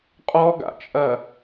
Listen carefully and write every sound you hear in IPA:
qʼɔɡa̰t͡ʃʼɐ

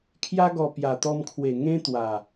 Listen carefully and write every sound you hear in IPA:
kʰja˧ɡɔ˨˩ pja˨˩t̪ɔ˧mkʰwe˨˩ ŋẽ˦t̪wa˨˩

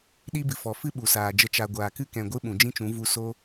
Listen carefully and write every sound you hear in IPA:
ɗi˦bɨ˨fɔ˨ fɨ˦ ɓu˨saː˨d͡ʒə˧ t͡ʃa˨ɡʷaː˨kɨ˦ kɛ̃˨ɡʷɨ˦ ɓũ˨d͡ʒĩ˦t͡ʃũ˨˦ vu˧ so˦

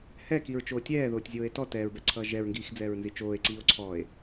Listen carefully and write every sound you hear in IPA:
hɛkiɹt͡ʃoː tʲɛːðoːtʲzʲoːe̯ tɔ tɛːɹbɛǀʰʌː ʒɛɹŋɡiːxd͡zɛːɹnzi t͡ʃoːe̯ǀiːo̯ ǀʰɔːe̯

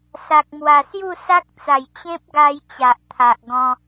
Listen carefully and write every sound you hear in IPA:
sa˨k̚ mwa˨˩sju˥˧sa˦k̚t͡sa˨˩j t͡ɕẽ˦p̚ɡa˧j t͡ɕa˨ʔt̪ʰa˨ʔ ɡɔ̃˧

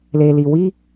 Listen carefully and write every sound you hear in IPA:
le˨li˨wi˦

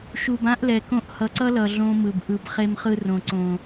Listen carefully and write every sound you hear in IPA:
ʃu˨bã˦ʔlɛ˨kõ˦ʔ hʌ˨ǀʌ˦lʌ˨ ɮõ˦mɯ˨b ʔɯ˨b χe˦mχɯ˦rõ˨ ǀõ˨

